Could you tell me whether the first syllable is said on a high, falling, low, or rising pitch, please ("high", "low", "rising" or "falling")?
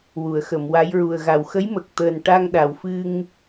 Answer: low